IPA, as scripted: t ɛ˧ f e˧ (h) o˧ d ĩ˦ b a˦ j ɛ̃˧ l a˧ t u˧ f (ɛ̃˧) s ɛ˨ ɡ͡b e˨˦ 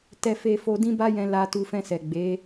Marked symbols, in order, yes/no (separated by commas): no, yes